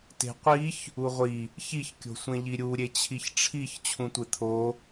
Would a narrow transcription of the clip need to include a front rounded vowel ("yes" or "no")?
no